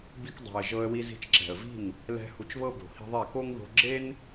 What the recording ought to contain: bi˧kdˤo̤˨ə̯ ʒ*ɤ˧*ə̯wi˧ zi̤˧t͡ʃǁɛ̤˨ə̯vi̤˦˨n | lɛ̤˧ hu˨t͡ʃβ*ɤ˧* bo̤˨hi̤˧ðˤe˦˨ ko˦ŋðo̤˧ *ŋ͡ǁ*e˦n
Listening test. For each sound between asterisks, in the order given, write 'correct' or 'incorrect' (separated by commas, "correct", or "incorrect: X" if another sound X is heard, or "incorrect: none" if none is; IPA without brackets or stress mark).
correct, correct, incorrect: ɡ͡ǁ